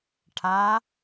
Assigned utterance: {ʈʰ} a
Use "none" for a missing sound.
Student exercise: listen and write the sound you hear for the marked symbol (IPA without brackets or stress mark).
ʈʰ